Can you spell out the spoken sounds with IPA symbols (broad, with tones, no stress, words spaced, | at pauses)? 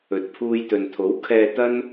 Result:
ɵ˨t̚pʰuː˧jt̪ɵ˨n t̪ʰo˨˥wkʰɛː˧t̪ɐ˥n